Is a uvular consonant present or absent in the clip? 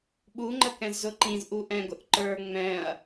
absent